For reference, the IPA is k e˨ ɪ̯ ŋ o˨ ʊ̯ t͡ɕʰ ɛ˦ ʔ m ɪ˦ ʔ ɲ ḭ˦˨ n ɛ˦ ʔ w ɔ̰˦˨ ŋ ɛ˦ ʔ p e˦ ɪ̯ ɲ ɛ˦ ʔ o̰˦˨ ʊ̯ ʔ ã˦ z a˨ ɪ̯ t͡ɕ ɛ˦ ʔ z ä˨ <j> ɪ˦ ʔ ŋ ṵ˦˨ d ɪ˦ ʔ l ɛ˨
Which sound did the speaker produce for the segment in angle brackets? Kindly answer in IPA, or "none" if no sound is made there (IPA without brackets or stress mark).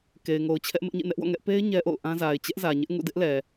ɲ